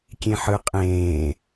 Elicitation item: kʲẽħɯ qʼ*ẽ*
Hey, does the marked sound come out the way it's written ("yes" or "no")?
no